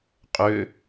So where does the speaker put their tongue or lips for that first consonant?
uvula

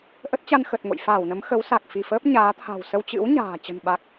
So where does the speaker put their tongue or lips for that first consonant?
throat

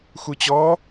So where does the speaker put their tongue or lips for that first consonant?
velum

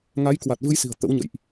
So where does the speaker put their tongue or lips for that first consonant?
velum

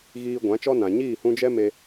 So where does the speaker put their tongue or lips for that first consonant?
velum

